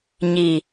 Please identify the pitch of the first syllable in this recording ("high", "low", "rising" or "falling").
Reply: low